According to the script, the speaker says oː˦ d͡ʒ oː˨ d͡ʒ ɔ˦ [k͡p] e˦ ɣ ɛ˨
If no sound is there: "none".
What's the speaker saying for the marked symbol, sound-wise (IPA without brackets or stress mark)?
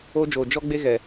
ɡ͡b